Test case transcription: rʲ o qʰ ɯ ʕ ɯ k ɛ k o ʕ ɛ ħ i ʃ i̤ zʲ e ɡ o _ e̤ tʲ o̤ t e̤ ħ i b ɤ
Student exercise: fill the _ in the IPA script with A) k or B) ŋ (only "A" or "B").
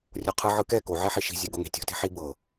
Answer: B